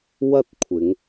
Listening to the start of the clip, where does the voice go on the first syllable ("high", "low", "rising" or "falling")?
high